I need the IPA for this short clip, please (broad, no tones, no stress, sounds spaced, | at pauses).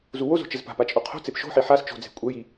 z u w o z o̤ t͡ʃ ɘ z p a̤ p a t͡ʃʼ o qʰ o̤ t͡s e p ʃ o̤ ħ i ħ a s t͡ʃ o̤ d͡z e̤ kʷʼ ɛ j i